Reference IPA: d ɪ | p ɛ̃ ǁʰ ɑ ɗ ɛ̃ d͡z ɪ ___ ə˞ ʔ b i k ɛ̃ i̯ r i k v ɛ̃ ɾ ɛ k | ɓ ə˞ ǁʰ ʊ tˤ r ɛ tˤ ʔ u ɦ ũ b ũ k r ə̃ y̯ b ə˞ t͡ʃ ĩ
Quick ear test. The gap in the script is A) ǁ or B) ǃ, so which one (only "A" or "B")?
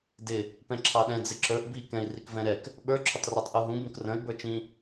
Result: A